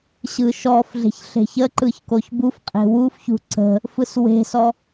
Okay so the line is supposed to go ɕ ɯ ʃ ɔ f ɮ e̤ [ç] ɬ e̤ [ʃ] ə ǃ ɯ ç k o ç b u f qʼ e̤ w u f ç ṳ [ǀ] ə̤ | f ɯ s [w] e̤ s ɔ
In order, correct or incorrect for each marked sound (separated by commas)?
correct, incorrect, correct, correct